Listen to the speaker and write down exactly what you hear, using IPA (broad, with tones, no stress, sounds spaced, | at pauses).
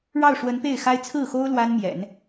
ɻ ɑ˥˩ ʊ̯ ʂ w ə˧˥ n p e˥˩ ɪ̯ x a˥ ɪ̯ t͡sʰ ɹ̩˥˩ x o˥ ʊ̯ l w a˥ n m j ɛ̰˨˩˦ n